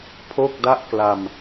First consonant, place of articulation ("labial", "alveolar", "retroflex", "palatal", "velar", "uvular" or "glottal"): labial